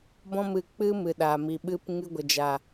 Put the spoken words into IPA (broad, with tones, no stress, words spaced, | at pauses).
bɔ̃˦mɨ˧k͡pɨ˦ mɨ˨ɗaː˨mi˨ ɓɨ˧p ŋɨ˧ɡʷə˨d͡ʒa˨